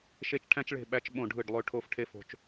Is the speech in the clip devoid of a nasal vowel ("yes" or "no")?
no